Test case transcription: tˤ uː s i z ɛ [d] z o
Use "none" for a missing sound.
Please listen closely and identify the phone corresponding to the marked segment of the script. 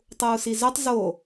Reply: tˤ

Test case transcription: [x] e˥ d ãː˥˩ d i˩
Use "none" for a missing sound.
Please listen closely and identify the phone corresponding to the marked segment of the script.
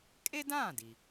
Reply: kʼ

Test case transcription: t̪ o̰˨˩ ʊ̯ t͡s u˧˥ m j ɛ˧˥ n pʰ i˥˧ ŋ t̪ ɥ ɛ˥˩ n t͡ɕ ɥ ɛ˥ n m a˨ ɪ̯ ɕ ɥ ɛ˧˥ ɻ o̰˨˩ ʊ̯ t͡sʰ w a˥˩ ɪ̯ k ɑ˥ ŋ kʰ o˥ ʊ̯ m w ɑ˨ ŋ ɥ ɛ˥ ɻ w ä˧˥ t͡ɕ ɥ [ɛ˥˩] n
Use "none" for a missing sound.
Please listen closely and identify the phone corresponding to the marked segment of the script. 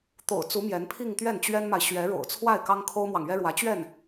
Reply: ɛ˥˩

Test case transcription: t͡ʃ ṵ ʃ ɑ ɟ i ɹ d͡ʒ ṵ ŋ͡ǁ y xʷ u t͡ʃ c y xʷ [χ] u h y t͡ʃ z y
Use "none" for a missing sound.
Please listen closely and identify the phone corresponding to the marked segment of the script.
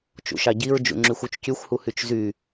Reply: h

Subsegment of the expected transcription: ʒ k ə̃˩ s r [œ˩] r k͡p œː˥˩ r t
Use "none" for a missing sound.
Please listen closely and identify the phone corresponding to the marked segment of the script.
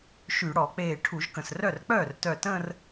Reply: œ˥˩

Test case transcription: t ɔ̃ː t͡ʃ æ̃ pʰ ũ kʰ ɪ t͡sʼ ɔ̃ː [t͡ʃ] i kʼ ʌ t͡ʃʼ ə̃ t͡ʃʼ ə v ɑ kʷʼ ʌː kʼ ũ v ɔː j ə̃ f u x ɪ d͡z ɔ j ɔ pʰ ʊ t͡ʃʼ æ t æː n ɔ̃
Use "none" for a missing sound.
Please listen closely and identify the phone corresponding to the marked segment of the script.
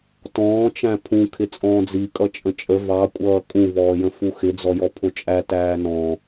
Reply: d͡z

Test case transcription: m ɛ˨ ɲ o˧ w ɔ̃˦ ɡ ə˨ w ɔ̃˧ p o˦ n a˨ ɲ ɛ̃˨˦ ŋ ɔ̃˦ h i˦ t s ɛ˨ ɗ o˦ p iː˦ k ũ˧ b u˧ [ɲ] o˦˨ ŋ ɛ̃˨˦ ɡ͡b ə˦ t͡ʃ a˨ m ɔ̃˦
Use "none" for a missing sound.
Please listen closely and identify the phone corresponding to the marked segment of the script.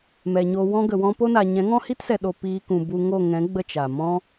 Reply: ŋ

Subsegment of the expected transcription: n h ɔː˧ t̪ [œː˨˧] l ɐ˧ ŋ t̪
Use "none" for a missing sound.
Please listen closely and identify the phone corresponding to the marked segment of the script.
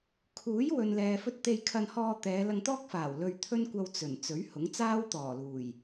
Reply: ɛː˨˧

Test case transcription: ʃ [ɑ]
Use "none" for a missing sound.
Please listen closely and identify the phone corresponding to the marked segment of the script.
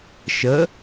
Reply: ə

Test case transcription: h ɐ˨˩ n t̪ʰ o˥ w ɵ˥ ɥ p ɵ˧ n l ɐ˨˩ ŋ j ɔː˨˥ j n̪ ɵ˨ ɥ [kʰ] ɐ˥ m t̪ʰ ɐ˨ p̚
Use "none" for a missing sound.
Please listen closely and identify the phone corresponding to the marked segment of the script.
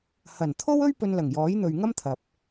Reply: ŋ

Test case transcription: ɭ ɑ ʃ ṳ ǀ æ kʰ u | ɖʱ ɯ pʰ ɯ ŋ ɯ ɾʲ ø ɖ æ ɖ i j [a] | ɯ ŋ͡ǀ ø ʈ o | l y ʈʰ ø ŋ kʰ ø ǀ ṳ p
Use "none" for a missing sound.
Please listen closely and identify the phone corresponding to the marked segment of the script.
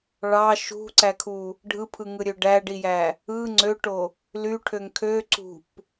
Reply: æ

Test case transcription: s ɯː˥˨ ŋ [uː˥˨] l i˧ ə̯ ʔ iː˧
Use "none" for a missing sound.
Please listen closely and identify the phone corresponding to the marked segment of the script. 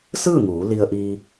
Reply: uː˩˧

